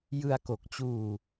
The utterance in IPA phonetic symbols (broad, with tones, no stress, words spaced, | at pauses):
jɯ˧a̯ko˨˩k̚t͡ɕuː˧